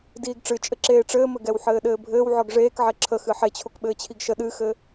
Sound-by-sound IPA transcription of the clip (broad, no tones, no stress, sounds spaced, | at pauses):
d iː ɡ ʈ͡ʂ ɨ t͡ʃʼ ɘ ǁ eː ʈ͡ʂ ɘː m ɘ ɡ ɛ w ħ ɘː ɗ ɘː bʱ ɘː w ʕ ɔ ɡ ʐ eː k ʕ ɛ ǁʰ ə x ɨ ħ e t͡ɕʰ o k ɓ ɘː t͡ɕʰ i ɡ ʃ ə ɗ ɨ x ɘ